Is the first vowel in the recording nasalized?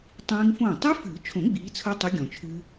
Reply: yes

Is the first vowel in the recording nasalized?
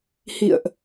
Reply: no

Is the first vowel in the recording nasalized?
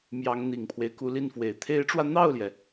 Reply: no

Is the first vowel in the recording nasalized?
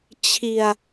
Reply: no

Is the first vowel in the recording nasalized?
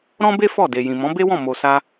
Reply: yes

